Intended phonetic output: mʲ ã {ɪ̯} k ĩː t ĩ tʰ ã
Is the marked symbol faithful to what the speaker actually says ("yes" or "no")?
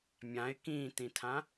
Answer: yes